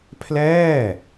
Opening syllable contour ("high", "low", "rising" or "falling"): falling